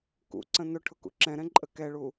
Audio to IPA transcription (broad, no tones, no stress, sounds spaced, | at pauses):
k ṵ ǀ ə̃ n ʊ ʈʰ ʊ k ṵ ǁ ɛ̃ ɾ ɛ̃ ǃʼ ə k ɛ ɭ u